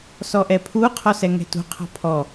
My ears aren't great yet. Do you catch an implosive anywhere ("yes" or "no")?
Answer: no